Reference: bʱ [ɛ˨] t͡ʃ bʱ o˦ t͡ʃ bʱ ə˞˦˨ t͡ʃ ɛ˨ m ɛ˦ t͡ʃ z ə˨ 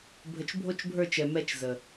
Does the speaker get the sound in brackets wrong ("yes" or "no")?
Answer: yes